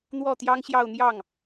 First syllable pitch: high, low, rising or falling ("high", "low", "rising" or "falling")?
falling